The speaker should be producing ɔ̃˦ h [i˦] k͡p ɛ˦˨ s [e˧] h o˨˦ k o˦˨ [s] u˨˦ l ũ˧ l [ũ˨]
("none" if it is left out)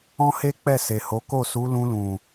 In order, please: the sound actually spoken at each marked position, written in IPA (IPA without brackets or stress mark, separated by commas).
e˦, e˨, s, ũ˨